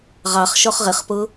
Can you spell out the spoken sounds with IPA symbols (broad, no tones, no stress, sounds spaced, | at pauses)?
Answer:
ʁ ɑ χ ʃ ɔ χ ʁ ɪ χ p ʊ